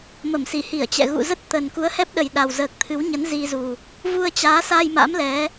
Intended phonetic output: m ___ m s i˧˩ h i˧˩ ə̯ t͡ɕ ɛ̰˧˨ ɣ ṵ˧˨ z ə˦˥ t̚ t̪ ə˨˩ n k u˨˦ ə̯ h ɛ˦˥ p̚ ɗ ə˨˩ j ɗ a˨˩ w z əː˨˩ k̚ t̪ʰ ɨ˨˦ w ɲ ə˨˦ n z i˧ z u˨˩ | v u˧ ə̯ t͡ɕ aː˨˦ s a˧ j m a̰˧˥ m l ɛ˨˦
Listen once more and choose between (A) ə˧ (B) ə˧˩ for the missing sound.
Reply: B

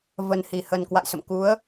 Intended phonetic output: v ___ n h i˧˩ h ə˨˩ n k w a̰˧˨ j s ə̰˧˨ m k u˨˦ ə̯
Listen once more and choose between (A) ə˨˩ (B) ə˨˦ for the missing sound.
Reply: A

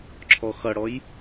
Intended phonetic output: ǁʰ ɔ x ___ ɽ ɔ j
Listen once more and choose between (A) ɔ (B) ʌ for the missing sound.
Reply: B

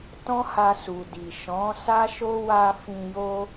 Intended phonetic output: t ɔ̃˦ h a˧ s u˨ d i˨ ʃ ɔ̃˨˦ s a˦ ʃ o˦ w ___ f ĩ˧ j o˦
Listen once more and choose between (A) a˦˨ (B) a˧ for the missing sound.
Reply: B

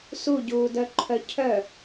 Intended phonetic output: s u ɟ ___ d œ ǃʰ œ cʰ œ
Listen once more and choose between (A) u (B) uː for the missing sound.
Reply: B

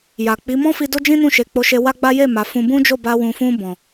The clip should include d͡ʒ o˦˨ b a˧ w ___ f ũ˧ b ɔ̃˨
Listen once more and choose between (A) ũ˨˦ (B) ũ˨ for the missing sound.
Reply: B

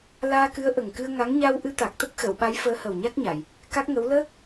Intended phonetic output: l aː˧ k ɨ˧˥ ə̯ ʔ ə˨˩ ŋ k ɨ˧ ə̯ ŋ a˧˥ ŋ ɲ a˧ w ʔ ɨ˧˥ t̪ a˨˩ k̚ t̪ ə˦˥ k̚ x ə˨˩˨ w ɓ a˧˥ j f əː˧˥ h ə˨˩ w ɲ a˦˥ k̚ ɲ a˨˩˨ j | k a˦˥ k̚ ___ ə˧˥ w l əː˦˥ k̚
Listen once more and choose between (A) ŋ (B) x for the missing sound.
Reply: A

